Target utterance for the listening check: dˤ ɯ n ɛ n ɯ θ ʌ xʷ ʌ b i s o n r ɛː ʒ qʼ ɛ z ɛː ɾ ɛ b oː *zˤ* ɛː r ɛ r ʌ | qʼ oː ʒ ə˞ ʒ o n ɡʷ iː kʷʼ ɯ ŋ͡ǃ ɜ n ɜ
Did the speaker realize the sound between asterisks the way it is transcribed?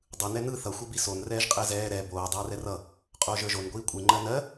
no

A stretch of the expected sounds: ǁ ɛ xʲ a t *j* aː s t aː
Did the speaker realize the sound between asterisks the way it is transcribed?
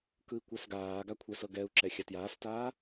yes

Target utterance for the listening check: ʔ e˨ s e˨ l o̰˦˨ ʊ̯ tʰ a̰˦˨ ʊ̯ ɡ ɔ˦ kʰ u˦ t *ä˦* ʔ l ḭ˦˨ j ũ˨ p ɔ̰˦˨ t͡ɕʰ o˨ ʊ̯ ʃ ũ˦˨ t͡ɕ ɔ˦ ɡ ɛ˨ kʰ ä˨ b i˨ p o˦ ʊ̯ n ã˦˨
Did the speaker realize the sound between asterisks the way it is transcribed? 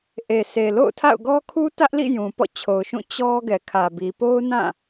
yes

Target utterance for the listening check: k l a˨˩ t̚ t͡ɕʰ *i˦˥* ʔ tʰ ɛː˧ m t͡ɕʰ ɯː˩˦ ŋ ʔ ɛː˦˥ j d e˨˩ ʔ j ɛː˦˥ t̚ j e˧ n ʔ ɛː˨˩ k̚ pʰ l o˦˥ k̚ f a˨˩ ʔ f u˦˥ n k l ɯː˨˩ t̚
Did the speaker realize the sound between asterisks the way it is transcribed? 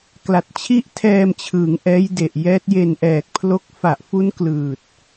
no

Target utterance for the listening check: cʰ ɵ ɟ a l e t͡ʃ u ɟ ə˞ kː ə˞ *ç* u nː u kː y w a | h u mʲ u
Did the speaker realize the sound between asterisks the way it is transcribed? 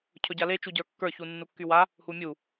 yes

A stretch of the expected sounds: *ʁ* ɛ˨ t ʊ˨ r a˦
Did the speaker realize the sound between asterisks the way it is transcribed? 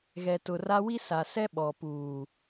no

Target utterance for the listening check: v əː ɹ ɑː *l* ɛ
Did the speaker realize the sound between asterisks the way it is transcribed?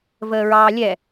no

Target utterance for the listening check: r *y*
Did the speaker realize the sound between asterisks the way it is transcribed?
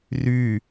yes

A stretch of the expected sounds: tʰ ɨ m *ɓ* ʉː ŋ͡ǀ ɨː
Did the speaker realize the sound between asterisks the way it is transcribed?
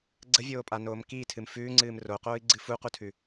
no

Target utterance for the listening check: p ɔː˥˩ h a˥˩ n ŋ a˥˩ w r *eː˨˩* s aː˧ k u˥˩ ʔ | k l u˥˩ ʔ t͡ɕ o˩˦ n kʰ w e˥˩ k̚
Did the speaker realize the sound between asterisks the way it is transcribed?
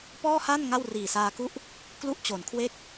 no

